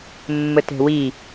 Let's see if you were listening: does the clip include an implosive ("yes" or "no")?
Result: no